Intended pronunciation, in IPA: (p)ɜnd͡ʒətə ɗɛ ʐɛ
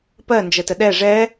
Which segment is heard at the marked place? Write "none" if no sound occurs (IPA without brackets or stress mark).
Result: p